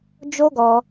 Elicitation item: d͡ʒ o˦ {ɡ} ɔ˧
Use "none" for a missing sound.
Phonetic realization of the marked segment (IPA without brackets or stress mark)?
ɡ